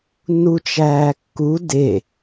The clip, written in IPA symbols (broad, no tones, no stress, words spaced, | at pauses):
nut͡ʃæːkːu de